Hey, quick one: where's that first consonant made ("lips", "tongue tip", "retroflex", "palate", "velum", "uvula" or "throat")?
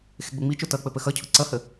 velum